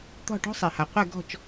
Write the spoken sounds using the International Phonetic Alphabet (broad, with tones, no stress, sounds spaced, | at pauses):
t̪ ɔ̤˥˩ ʈ ɔ̤˥ sˤ e˩ h a˩ qʷ ɛ˥˩ ɡ ɔ̤˥˩ t͡ʃ